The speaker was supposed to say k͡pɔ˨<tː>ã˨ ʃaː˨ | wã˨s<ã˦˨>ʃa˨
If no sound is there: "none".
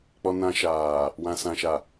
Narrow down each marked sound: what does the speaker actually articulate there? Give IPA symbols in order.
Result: n, ã˨

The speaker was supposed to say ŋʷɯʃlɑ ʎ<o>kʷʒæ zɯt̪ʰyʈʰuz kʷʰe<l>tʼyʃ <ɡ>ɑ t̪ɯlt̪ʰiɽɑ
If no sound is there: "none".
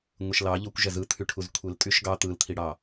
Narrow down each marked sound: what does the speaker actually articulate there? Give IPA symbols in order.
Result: o, l, ɡ

